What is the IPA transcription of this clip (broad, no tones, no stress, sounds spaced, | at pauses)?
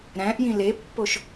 ɾ æ̃ ʔ j ĩ l e pː o ʃ